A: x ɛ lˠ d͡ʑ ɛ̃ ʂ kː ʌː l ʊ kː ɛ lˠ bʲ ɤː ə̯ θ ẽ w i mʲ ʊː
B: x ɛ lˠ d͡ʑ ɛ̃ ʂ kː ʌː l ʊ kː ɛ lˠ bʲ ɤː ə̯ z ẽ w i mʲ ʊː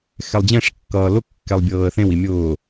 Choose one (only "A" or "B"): A